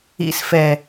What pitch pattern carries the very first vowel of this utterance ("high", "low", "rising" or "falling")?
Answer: low